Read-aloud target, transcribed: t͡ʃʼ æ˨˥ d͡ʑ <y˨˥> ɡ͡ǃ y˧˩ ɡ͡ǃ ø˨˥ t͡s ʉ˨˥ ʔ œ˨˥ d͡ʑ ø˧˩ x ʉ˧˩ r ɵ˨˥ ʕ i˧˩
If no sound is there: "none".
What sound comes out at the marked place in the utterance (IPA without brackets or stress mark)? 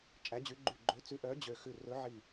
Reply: y˨˥